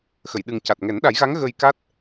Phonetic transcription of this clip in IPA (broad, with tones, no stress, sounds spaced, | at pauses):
x ə˨˩˨ j ɗ ɨ˨˩ ŋ c a˨˩ t̚ ŋ ɛ˨˩˦ n ɗ a˨˩˦ j ɣ a˧˥ ŋ ɣ ə˧ j k a˦˥ t̚